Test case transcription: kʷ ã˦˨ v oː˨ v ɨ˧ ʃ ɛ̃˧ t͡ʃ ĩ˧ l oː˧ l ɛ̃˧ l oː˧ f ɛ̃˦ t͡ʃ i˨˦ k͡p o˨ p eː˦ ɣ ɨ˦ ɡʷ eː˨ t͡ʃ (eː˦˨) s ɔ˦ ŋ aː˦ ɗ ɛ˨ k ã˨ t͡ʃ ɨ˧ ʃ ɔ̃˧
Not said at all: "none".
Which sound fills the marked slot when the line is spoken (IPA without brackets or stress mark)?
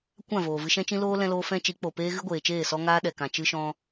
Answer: eː˦˨